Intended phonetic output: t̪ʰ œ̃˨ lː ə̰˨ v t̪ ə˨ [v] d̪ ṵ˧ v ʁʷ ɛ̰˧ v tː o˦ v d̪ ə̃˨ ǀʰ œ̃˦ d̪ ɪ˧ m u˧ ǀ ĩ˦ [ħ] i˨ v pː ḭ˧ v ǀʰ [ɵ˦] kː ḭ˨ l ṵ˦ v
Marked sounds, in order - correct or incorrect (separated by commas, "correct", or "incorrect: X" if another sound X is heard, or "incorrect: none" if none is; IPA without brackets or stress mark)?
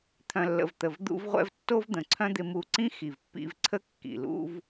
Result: correct, incorrect: x, incorrect: ə˦